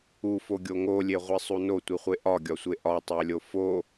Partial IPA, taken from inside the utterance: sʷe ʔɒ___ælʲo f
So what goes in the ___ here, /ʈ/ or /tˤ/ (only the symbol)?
tˤ